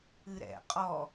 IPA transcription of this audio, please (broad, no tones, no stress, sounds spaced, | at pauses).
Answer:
ɨ ɾ ɛ̰ qʼ ɔ